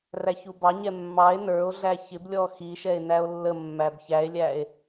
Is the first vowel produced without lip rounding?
yes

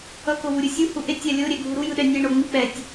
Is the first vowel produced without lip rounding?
yes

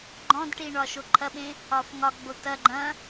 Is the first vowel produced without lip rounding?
no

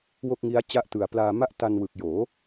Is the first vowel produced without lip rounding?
no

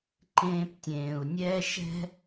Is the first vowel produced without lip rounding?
yes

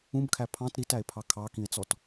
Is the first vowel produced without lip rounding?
no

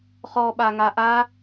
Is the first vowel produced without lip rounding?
no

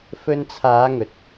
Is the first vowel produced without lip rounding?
no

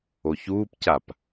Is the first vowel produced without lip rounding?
no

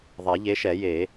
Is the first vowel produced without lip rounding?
yes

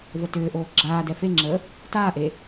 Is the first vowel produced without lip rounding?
yes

